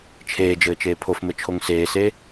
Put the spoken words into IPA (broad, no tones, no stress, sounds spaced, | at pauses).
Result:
t͡ʃʰ eː d͡ʒ ɘː t͡ʃ eː pʰ o f m ɘ t͡ʃʰ o ŋ s eː s e